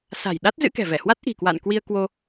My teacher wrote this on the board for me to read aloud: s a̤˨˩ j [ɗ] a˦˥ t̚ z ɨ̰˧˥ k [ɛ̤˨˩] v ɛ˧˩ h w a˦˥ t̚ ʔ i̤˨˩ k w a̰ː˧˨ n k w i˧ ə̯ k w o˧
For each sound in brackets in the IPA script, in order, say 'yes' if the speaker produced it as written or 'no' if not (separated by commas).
yes, yes